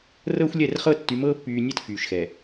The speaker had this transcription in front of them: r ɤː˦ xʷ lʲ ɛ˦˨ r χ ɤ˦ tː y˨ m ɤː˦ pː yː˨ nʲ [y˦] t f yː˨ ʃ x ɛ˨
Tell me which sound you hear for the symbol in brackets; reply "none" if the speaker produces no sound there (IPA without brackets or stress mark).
e˦